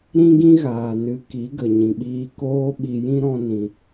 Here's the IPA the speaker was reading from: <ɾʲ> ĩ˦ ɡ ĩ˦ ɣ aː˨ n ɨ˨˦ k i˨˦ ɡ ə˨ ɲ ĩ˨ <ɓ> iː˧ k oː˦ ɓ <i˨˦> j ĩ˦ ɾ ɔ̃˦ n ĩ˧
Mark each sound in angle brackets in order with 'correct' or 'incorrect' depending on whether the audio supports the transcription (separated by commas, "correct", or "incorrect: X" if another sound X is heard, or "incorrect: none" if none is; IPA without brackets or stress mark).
incorrect: ɾ, correct, incorrect: i˧